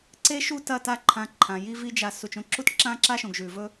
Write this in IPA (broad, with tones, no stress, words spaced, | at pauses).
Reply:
ǀeː˦ʃu˦ tɐ˦˨ ta˦ǃʰã˧ǃʰã˨ji˦ vi˦d͡ʒa˧ su˨t͡ʃõ˧ǁu˦tǁãː˦ ǁa˦ʃõ˨ɡ ʒʉ˨vɵ˦